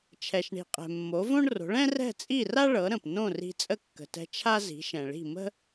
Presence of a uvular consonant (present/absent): present